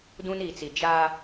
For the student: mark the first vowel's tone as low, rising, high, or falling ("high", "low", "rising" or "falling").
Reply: high